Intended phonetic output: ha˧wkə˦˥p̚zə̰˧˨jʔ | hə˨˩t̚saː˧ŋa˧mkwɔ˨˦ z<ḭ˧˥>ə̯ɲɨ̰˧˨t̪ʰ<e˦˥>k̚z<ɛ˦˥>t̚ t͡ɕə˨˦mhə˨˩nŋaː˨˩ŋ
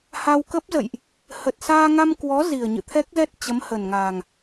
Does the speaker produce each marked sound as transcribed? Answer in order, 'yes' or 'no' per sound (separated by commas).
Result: no, no, yes